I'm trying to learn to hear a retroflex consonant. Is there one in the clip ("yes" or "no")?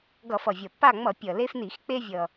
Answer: no